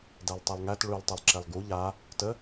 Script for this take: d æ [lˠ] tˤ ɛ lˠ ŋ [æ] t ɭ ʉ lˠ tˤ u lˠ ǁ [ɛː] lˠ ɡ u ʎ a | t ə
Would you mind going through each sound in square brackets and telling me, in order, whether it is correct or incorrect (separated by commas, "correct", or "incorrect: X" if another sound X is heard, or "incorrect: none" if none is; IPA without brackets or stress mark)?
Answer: correct, correct, incorrect: ɛ